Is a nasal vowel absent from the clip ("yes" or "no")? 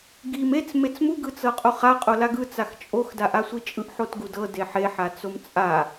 yes